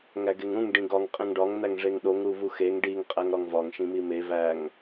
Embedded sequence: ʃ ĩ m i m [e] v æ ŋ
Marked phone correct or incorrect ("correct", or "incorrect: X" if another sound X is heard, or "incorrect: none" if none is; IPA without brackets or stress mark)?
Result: correct